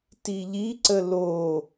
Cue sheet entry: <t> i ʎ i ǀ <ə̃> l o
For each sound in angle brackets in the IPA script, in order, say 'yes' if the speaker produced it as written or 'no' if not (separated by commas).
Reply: yes, no